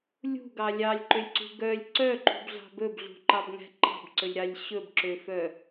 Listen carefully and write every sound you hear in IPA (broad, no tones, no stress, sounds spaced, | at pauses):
lʲ ṳ ɡ ɑ lʲ ɑ lʲ ǃ ø lʲ ǀ ṳ ɡ œ lʲ ǀ œ ǃ ṳ b ɮ ɑ̤ b ɵ b ɮ ṳ ǃ ɑ b ŋ æ̤ ǃ ɑ̤ b ǀ ɵ lʲ ɾ ɑ lʲ ɕ ɵ b ǁ ø f œ